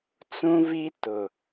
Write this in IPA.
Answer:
t͡s ũ˦ v i˦ t ʊ˨

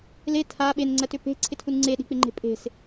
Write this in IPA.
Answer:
l e tʰ a ɓ e n ŋ͡ǀ ɜ t ʏ p e̤ ǀʰ ɪ tʰ u n ŋ͡ǀ e ɗ i̤ k͡p ɪ ŋ͡ǃ e̤ pʼ e̤ s

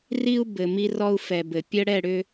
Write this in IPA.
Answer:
r i˦ u̯ b ɘ˨ m i˦ r ɔ˦ u̯ f ɛ˨ b ɘ˨ pʲ ə˦ ɽ ɛ˦˨ ɽ ʏ˦

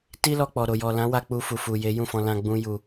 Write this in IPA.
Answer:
t i˦ l ɔ˧ k͡p ɔ˨ ɾ o˨ j ɔ˨ l ã˨˦ w a˧ k͡p u˧ f u˨ f u˨ j e˨˦ j ũ˦˨ f ɔ̃˧ l ã˧ ɡ͡b ũ˦ j u˧

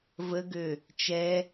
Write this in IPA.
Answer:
v ə ɡ ø | t͡ʃ ɛ

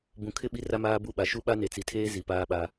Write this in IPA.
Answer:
b ũ˨ kʰ ɪ˦ ɓ i˦ r a˦ m aː˦ b u˦˨ ɓ a˨ ʃ u˦ ɓ a˦ n e˨ t͡s i˨ tʰ eː˦ z i˨ p aː˦ ɓ a˦

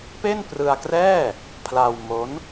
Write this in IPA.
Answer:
p e˥˩ n p r ɯ˧ a̯ k r ɛː˥˩ | pʰ l a˧ w m o˦˥ n

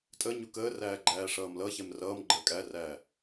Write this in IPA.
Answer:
tʼ ə ɲ u k əː r æː ɡ͡ǃ æː ʂ ʌː m l ʌ ç ɛ m r ʌː m ɡ͡ǃ əː kʼ æ r æː

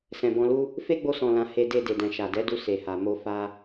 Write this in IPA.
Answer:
s ɛ̃˨ b ɔ̃˧ l u˦ | f e˦ ɡ͡b o˧ s ɔ̃˨ l ã˨ h e˧ d e˧ d e˨ d ɛ̃˨ ʃ a˨ d ɛ˨˦ d u˧ s e˨ h a˨ m o˧ f a˧

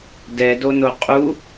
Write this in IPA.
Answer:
d ɛ d o n o qʼ u

